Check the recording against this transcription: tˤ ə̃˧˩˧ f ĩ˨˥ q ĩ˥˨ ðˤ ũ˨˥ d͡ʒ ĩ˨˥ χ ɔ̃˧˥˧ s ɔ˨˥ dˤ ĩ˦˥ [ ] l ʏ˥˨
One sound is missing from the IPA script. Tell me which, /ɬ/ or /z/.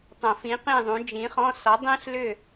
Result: ɬ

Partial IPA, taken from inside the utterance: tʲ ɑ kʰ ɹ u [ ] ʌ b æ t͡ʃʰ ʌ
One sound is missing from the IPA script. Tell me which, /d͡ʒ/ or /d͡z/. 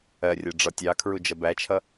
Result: d͡ʒ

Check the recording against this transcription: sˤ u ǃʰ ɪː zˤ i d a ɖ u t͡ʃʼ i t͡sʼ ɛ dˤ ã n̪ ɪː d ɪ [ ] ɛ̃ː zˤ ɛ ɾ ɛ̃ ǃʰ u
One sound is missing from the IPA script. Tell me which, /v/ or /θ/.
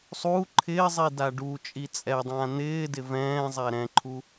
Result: v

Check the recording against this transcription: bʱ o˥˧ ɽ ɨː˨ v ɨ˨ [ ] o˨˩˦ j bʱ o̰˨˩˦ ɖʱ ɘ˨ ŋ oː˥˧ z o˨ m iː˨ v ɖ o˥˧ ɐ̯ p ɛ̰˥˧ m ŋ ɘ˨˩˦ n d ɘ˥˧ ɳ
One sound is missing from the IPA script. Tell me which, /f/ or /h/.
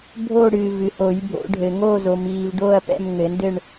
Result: h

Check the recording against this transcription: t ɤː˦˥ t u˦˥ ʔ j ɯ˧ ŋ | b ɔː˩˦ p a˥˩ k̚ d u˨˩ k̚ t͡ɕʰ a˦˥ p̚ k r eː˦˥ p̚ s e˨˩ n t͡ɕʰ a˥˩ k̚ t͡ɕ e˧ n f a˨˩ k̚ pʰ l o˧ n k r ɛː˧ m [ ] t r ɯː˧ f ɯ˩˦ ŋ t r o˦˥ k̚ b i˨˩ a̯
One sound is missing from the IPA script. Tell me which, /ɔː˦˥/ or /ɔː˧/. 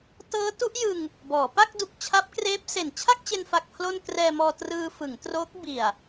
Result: ɔː˧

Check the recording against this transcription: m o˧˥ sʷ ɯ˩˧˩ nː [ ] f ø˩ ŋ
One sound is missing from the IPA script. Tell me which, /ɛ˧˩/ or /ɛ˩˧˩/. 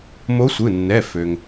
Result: ɛ˩˧˩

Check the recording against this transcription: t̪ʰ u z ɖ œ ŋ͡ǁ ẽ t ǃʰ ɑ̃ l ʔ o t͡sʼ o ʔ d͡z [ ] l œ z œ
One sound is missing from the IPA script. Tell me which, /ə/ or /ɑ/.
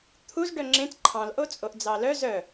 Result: ɑ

